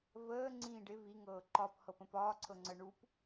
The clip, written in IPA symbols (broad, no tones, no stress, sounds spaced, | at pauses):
v əː ŋ͡ǀ ĩː ɖ ɪ v i ŋ ɤː ǃ ɒ p h ɤ p ə̃ p ɒː ǀʰ ɤ ŋ͡ǀ ə ɳ u p